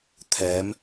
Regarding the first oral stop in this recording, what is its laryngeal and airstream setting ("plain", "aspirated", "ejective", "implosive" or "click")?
aspirated